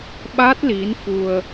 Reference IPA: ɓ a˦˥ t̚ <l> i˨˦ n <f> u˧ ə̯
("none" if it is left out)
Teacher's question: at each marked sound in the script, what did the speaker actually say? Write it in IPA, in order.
l, f

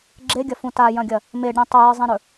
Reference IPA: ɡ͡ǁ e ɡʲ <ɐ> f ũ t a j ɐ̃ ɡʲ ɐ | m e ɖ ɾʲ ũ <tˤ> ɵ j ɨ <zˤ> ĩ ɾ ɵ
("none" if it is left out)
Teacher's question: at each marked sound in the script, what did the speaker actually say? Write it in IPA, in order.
ɐ, tˤ, zˤ

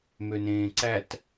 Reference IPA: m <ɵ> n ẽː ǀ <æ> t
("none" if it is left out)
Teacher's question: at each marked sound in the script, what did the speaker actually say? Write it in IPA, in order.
ø, æ

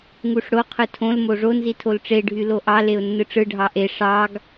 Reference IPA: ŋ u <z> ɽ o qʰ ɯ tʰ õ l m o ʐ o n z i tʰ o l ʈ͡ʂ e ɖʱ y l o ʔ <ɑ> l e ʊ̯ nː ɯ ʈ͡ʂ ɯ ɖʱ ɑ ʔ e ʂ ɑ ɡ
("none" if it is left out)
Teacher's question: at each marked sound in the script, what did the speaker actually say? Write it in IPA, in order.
ʂ, ɑ

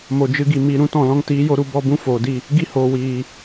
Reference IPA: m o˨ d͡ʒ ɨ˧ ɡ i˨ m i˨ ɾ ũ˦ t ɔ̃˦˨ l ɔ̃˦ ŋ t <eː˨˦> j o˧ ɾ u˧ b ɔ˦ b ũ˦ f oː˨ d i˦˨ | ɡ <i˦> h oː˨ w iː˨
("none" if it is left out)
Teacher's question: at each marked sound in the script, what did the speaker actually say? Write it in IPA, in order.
iː˨˦, i˦

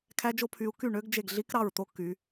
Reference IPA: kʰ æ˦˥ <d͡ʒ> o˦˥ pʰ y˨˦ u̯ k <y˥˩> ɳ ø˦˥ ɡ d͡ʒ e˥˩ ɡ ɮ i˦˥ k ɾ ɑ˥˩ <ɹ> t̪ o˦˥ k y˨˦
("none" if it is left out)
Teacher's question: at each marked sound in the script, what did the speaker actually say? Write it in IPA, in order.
d͡ʒ, y˥˩, ɹ

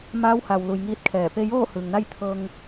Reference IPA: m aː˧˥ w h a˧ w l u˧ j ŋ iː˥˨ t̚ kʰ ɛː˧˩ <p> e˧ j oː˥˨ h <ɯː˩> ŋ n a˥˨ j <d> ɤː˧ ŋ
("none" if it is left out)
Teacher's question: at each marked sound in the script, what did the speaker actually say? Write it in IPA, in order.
p, ɯː˩, t̪ʰ

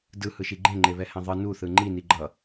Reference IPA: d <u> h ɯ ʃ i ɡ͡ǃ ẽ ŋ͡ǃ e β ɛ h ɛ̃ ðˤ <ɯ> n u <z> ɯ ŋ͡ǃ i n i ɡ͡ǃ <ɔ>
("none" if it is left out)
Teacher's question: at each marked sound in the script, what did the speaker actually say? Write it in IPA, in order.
ɯ, ɯ, θ, ʌ

